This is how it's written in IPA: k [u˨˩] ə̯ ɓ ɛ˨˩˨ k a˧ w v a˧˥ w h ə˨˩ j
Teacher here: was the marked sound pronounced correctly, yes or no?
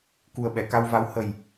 yes